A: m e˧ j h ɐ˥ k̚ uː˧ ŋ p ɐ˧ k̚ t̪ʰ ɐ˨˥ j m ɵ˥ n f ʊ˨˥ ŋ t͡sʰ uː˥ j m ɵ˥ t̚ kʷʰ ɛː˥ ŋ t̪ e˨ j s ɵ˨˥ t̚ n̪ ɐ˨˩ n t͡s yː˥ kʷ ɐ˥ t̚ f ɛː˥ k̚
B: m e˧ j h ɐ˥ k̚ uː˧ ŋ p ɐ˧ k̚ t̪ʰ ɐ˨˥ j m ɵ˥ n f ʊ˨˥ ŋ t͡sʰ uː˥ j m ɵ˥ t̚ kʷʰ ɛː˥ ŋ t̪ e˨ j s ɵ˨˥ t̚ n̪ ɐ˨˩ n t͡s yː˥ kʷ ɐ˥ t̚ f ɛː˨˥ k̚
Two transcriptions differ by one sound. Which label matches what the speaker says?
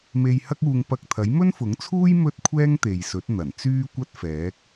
B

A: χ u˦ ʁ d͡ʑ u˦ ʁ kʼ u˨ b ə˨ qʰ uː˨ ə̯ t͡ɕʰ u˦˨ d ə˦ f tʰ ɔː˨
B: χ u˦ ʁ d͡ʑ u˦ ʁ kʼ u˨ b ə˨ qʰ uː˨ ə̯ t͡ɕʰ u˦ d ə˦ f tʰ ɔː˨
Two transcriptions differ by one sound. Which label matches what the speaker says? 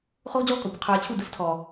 A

